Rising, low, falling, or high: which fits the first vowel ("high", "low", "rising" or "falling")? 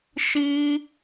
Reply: high